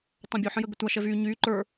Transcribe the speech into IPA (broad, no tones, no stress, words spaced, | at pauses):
tˤãbʲo ħə̃jə ɡətʷa ʃɛvyː ɲyː ǃə˞